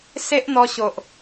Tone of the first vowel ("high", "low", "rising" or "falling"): high